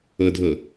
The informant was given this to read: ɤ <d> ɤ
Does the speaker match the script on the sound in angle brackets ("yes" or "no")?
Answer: no